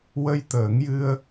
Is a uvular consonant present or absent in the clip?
absent